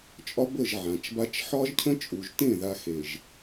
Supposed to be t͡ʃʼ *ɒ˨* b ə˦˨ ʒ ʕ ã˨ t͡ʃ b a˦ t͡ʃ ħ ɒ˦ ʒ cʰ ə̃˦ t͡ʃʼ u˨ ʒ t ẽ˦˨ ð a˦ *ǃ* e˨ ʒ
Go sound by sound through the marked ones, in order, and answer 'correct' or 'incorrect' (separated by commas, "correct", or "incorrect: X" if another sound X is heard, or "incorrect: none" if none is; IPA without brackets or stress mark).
incorrect: ɒ˦, incorrect: x